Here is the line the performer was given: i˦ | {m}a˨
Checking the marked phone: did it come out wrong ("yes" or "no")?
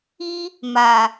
no